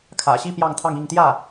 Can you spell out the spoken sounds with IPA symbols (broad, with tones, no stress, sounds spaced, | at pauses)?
kʰ ä̰˨˩ ɕ i˥˧ p j ɑ˥˧ ŋ t̪ʰ ɑ˥˧ ŋ i˥˧ ŋ t̪ j ä˥˩